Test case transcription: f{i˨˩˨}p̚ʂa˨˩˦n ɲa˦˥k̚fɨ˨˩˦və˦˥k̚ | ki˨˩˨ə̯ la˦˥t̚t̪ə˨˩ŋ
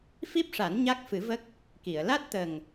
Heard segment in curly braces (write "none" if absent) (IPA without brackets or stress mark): i˦˥